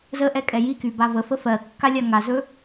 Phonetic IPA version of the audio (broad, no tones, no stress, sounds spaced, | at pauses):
z ə ʔ ɛ kʼ ɛ j i k y b a v ə f ə f ɜ kː a lʲ a ŋ a z ɵ